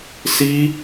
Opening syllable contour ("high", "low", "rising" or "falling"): high